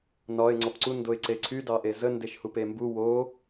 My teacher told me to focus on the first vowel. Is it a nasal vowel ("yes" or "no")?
no